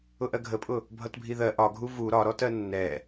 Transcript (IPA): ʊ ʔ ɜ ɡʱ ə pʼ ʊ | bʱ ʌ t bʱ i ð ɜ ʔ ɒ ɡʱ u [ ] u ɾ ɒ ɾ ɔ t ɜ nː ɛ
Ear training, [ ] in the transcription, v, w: v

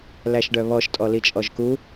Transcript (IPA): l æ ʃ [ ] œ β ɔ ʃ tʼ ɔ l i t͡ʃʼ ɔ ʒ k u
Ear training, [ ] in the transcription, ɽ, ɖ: ɖ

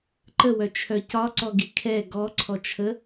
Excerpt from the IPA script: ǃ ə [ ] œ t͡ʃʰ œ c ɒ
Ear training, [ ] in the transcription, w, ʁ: w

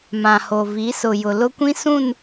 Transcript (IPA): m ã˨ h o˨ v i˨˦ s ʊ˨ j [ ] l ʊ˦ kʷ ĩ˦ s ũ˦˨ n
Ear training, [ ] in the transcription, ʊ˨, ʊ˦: ʊ˨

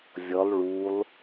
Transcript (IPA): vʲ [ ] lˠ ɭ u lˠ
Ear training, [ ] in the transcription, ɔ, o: ɔ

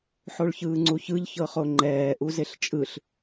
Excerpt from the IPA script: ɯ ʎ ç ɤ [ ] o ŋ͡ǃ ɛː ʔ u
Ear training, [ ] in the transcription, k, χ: χ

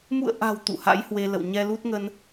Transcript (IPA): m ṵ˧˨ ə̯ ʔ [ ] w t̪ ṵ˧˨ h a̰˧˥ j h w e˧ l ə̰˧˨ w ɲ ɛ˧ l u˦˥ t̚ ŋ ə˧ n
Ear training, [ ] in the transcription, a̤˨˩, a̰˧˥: a̤˨˩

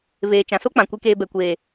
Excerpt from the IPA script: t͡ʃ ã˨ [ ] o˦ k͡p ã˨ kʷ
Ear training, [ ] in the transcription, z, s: s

